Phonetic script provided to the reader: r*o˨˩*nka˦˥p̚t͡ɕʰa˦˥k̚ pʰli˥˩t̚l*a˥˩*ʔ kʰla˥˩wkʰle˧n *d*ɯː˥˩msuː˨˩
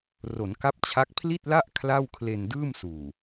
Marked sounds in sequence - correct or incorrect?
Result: incorrect: o˩˦, correct, correct

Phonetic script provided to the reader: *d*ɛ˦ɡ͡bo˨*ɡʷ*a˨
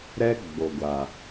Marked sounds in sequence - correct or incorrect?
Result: incorrect: ɾ, correct

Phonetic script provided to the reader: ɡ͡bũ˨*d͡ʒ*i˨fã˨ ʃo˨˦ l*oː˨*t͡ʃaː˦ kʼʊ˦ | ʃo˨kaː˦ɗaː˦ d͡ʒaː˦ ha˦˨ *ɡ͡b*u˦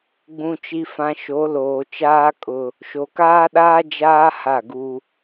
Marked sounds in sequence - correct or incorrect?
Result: incorrect: t͡ʃ, correct, incorrect: ɡ

